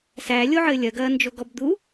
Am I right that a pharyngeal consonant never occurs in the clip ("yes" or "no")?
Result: no